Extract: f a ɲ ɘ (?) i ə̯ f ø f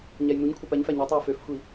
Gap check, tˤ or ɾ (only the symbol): tˤ